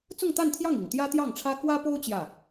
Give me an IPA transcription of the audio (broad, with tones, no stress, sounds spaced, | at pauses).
t͡s ʊ˥˧ ŋ t̪ a˥˧ n t̪ʰ j ɑ˥˩ ŋ i˨˩ ŋ t̪ j ä˥ t̪ j ɑ˥˩ ŋ ʈ͡ʂʰ ä˥ k w ä˥ p o˥ ʊ̯ t͡ɕ j ä˥˩